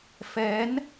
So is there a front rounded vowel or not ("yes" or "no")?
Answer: no